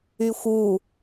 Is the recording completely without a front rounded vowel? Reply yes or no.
no